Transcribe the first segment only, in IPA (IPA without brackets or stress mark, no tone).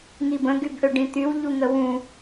ŋ